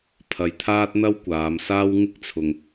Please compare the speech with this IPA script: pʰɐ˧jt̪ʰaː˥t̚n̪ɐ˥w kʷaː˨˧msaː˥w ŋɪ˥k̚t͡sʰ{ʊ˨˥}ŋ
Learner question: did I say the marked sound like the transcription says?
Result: no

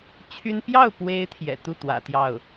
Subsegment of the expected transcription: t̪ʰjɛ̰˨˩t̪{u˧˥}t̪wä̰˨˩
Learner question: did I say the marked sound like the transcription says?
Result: no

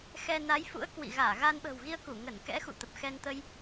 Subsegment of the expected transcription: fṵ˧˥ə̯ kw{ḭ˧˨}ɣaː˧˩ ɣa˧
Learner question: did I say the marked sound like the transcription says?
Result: yes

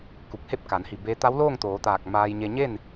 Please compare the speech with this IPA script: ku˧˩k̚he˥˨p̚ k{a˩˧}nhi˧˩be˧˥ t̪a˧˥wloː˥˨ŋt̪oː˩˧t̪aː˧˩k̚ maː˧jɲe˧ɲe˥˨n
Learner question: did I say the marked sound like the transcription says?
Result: yes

